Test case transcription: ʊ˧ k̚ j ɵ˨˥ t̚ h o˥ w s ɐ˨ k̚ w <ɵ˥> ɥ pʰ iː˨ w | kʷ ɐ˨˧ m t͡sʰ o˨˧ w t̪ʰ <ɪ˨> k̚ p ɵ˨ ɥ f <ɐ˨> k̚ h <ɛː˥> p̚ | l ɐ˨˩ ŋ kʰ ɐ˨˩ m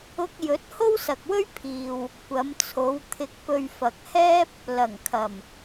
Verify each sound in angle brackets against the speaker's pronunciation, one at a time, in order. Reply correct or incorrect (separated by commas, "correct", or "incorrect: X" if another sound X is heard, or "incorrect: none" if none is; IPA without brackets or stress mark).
correct, incorrect: ɪ˨˥, correct, correct